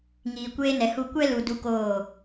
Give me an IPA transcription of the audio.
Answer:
ŋ iː˨ kʷ eː˧ n ɛ˨ h u˧ kʷ ɛ˦ l u˨ d u˦ k oː˦˨

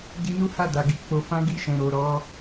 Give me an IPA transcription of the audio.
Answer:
d i˧ n u˦ h a˦˨ d a˨ ɡ i˧ k͡p o˨ f ã˧ ɡ i˧ ʃ ɛ̃˨ ɾ o˨ ɾ ɔ˨˦

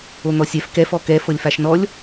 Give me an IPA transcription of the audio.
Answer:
o n̪ ɔ sʲ ɛ f k ɛ f ɔ k ɛ f ɤ lʲ f a ʃ n ɔ lʲ

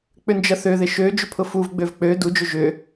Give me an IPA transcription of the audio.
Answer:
k͡p ʏ n d͡ʒ ɐ θ ø ð ɪ ʃ ø d͡ʒ ʏ pʰ ʊ f u v ɡ͡b ø v k͡p ø d u d͡ʒ ø ʒ ʏ

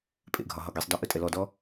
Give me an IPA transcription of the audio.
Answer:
pʼ ḛ ɡʱ ɒ ɦ ɒ ɡ i sˤ d ɒ ʔ ə tʼ ɛ l ɔ d ɔ

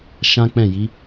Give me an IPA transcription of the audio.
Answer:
ʃ ã˦ k͡p ɛ̃˦˨ j i˨˦

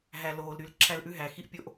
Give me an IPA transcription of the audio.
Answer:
ɦ æ˨ l oː˨ l ɾ y˨˦ l ǁʰ æ˦ l ʔ ʉ˦ ɦ æ˨ x i˦ ʔ pʲ o˦ ʔ

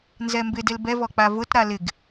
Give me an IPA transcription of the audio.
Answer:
n z ɛ m b ɪ d e l b ɛ v ɔ k͡p a v ʊ t ɾ a l ɪ ɡ

